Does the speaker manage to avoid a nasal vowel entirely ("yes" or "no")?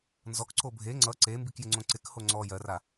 no